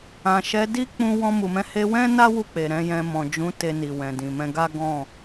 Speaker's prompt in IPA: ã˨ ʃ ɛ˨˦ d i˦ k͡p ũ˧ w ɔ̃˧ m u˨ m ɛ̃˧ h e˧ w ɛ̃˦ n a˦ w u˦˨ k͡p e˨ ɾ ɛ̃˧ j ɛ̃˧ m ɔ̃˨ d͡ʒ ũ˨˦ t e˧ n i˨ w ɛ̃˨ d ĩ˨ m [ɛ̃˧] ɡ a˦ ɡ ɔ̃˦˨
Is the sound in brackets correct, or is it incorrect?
correct